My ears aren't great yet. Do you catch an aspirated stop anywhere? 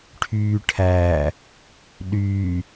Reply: yes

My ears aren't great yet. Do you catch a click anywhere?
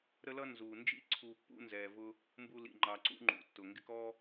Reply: yes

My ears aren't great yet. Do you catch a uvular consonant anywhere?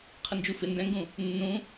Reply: yes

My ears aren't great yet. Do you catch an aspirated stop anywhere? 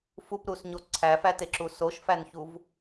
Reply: yes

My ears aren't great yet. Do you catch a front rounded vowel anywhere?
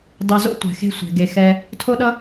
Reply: no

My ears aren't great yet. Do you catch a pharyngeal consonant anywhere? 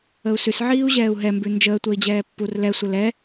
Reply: yes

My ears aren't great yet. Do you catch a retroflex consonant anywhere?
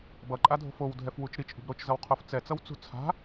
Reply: no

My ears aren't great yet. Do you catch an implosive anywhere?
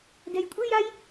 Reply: no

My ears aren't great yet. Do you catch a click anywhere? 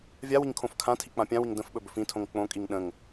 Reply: no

